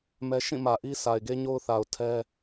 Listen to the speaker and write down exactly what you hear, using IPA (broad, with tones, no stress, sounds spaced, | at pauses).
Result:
m ɛ˦ ʃ ĩ˦˨ m ä˨ ʔ i˦ sʰ a˨ ɪ̯ ɡ e˦ ɲ o˦ ʊ̯ θ a˨ ʊ̯ tʰ ɛ˦